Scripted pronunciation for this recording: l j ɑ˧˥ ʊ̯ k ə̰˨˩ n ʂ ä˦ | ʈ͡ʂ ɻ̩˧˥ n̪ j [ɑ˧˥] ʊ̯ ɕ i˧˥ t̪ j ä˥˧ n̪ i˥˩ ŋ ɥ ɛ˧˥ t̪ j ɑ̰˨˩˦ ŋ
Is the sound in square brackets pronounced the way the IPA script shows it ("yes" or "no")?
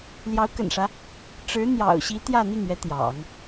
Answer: no